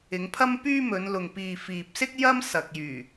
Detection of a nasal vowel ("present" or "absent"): absent